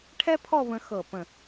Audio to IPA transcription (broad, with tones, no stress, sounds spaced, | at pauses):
ʈʰ ɛ˥ pʰ ɔ˥˧ β ə̃˧ x ɤ˧˩ p ə̃˧˩